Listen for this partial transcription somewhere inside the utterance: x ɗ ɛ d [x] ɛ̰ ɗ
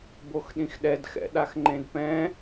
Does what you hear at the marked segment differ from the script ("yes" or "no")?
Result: no